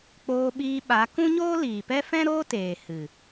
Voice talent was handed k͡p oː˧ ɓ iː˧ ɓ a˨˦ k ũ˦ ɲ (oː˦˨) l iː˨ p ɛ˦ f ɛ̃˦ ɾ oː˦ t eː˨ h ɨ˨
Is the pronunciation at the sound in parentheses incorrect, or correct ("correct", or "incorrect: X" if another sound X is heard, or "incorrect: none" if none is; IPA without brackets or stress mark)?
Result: incorrect: oː˦